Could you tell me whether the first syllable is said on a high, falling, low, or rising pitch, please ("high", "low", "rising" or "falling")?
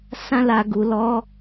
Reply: high